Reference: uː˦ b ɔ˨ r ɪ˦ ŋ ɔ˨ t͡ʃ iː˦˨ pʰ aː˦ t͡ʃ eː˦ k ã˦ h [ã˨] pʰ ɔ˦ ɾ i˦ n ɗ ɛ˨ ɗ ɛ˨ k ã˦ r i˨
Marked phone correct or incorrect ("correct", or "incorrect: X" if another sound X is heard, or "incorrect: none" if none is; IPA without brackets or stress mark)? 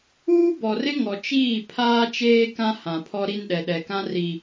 correct